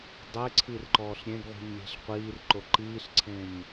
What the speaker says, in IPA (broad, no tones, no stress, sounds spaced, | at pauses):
dˤ e ǀʰ i r ǃ ɔː ɬ ɾʲ ẽ ɡ ʁʷ i̤ ɲ lʲ e̤ ɬ qʷ iː r ǃ o ǃ iː ɬ ǀʰ ẽ ɲ